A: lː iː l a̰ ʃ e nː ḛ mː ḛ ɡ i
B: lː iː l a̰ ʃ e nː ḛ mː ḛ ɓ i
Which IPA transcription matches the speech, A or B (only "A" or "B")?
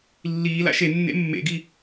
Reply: A